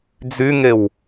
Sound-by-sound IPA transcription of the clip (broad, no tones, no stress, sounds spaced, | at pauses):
d͡z y ŋ e w